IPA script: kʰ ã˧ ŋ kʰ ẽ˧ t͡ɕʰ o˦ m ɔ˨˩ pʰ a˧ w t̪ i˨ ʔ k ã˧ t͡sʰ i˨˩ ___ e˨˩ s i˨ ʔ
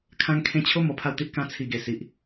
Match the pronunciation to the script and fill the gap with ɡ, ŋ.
ɡ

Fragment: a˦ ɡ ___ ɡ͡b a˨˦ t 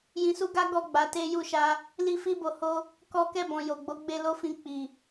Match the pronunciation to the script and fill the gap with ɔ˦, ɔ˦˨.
ɔ˦˨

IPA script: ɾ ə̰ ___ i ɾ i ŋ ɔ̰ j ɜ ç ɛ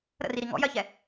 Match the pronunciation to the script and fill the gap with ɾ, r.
r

